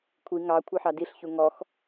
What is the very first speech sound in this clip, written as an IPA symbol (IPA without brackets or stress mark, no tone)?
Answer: kʷʰ